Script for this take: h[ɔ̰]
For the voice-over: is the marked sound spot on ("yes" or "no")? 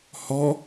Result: no